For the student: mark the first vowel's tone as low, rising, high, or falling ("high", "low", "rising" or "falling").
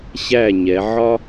falling